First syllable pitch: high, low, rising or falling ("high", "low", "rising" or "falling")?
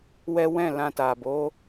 high